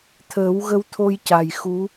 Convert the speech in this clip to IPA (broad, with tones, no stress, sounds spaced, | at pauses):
t̪ʰ əː˨˩˦ w ɣ ə˧ w t̪ʰ o˧ j c a˨˩ j x u˧˥